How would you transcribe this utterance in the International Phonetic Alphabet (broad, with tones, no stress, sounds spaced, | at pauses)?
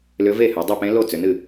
l ʏ˧˥ v e˥˩ h ʉ˩˧ dˤ ɨ˥˩ p ẽ˧˥ l o˥˩ t͡s ʏ˩˧ n ɨ˥˩